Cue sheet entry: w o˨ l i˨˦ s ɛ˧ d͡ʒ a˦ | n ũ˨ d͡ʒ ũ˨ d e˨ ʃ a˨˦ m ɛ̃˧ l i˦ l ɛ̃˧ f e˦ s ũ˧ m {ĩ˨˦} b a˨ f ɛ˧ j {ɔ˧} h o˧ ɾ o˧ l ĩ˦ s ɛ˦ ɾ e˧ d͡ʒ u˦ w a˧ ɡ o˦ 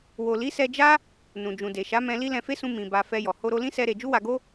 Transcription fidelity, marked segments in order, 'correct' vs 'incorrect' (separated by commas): incorrect, incorrect